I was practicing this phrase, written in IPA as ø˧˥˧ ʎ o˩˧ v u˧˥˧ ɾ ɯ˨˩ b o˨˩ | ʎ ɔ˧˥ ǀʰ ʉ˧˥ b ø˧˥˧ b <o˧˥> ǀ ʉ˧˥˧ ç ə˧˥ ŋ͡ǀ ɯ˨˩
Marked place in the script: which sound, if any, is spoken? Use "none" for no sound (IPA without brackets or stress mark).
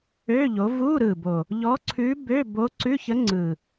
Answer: o˧˥